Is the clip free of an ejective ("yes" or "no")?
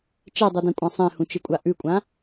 no